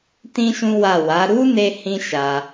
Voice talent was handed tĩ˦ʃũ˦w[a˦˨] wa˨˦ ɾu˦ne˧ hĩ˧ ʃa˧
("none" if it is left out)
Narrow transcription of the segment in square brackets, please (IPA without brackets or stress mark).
a˦˨